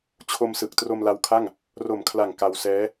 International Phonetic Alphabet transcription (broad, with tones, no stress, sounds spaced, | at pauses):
t͡ɕʰ o˧ m s ɯ˨˩ k̚ t r o˧ m l a˧ w kʰ a˥˩ ŋ | r o˨˩ m kʰ l a˨˩ ŋ k a˧ w s ɛː˦˥